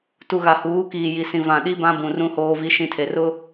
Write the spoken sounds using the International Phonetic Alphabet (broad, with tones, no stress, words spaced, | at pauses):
tu˨ɣa˨huː˨˦kiː˨ ji˨sĩ˨ vã˨ ɗi˦bã˦bũ˨ rũ˦hoː˦vi˦ ʃĩ˦tʰe˨ rʊ˦